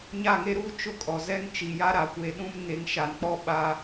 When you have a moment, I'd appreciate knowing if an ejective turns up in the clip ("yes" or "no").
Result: yes